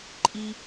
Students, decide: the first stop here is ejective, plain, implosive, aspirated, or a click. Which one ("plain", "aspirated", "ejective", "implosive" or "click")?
click